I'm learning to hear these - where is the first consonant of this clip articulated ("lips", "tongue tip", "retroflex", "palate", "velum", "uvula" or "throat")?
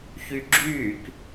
palate